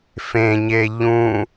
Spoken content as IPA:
f ẽ ɲ e ʎ ũ

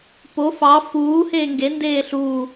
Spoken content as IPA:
p o f ɑ f uː h eː ŋ ɡ e n d eː ɬ u

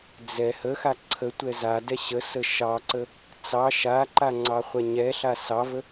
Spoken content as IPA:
d͡z ɛ h ə x a ǀʰ ə tʷ ɛ z a d ɛ ɕ ə s ə ʃ ɑ ǀ ə | t͡s ɑ ʃ a ǃ a ŋ͡ǀ ɑ χʷ ɛ ɲ ɛ ɬ a s ɑ v ə

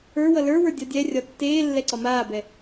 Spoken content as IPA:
ə˞ w ʌ l ə˞ w ə˞ dʲ ɒ dʲ ɛ rʲ ɒ tː eː lː ɛ ǀ ɒ m aː b ɛ

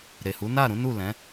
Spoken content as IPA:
ɾ e˨ h u˨˦ n a˦˨ ɾ ũ˨˦ n u˦˨ l ɛ̃˨˦

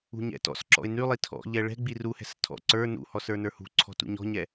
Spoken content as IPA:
ṳ ɲ ɛ̰ t ɔ̰ s ǁ ɔ̰ ɪ̯ n y lˠ i tʰ ɔ̰ ʎ ɛ ɭ ɛ̤ ɡ͡b i r u h ɛ̤ s tʰ ɔ̰ ǀ ə˞ n ṵ h ɔ s ə˞ n ə˞ h ṳ ǀʰ ɔ̤ t ṵ ɲ ɔ̤ ɲ ɛ

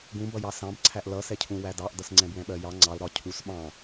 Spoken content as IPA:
ɡ ũ b ʌ j ɑ s ɑ̃ b ǀʰ æ ʔ l ʌ s ɛ cʰ ũ w æ d ɑ ʔ d ʌ s ŋ͡ǀ ɛ̃ b w ɛ̃ ɓ ɜ j ɑ ŋ͡ǀ ɑ l ɾ ɒ cʰ u s ɓ ɑ̃

